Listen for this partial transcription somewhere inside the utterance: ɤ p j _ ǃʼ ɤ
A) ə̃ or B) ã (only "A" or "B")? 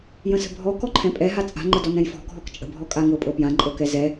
B